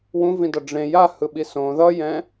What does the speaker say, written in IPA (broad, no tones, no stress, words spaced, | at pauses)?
wũvĩdʌ ɖ͡ʐẽ jahɯɓi sõ ðʌjɛ̃